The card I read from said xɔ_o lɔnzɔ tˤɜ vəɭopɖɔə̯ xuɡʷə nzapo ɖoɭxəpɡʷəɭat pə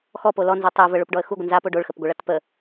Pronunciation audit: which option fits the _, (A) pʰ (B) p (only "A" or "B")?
B